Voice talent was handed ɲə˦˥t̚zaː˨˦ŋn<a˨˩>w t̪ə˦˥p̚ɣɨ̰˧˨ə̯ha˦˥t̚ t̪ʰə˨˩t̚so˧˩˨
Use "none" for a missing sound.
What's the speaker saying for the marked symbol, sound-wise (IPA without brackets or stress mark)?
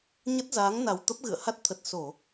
a˨˩